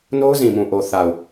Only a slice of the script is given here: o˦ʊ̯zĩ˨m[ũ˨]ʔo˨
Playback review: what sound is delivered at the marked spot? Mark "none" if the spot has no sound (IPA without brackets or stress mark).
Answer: ũ˨